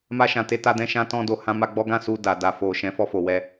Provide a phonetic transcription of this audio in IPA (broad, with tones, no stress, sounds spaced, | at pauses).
m a˧ ʃ ã˨ t e˧ t a˧ d ɛ̃˧ ʃ ã˧ t ɔ̃˧ d o˨ h ã˧ m a˧ ɡ͡b ɔ˦ ɡ ã˦ s u˧ d a˨ d a˨ f o˨ ʃ ɛ̃˨˦ f ɔ˧ f o˨ w ɛ˧